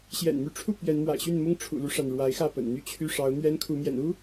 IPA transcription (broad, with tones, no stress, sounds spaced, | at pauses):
ɕ j ɛ̰˨˩ n m y˨˦ ʈ͡ʂʰ u˥˨ p ɥ ɛ˨˦ n m w a̰˨˩ ɪ̯ ɕ y˥˨ n m ʊ˦ ŋ ʈ͡ʂʰ ṵ˨˩ l u˦ ʂ a˩ n ɻ w a˨˦ ɪ̯ x ä˥˨ p ə̰˨˩ n n̪ y˦ t͡ɕʰ y˦ ʂ ɑ˨˦ ʊ̯ n̪ ɥ ɛ˦ n kʰ u˨˦ m j ɛ̰˨˩ n u˦